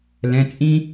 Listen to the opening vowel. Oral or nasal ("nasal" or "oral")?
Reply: nasal